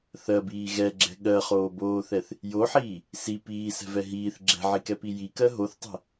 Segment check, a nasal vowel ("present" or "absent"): absent